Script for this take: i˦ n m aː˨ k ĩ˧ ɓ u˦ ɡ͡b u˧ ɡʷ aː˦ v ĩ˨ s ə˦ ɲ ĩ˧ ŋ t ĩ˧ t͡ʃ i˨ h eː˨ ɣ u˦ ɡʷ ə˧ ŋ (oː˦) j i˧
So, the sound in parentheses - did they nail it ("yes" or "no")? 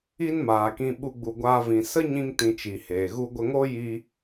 yes